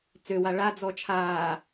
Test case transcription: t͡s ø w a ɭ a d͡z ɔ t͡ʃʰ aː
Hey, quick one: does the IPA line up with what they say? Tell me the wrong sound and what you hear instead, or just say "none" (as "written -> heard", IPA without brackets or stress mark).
none